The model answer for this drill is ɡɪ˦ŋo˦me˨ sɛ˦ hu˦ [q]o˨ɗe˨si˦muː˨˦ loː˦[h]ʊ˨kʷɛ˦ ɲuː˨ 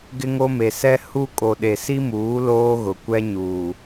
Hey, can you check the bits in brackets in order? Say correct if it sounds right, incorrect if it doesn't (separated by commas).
incorrect, incorrect